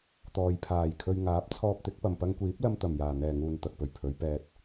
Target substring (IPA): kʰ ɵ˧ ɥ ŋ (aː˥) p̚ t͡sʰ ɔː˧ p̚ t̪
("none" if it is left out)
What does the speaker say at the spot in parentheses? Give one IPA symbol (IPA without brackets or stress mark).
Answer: aː˨˥